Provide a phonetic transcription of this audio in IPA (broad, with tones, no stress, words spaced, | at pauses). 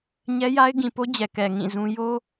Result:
ɲɛ˦ja˦ɪ̯ɡĩ˨po˦ d͡ʑɛ˨kɛ˨ ŋĩ˦˨zũ˦ jo˦